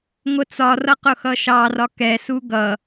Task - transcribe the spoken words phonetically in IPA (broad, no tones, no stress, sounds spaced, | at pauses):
ŋʷ ə t͡s ɒ r ʌ q ʊ x ʌ ʃ ɑ r ɒ k ɛ s u ɡ ʌ